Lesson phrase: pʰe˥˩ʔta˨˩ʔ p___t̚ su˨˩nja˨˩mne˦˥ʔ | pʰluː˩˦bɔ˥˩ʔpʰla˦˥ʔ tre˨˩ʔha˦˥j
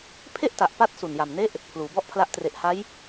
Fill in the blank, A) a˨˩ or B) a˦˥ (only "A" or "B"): B